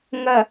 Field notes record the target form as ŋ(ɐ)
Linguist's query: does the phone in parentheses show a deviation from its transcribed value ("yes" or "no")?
no